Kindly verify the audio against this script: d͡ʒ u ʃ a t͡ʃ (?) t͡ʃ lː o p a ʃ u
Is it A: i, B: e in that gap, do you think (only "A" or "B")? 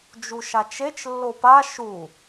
B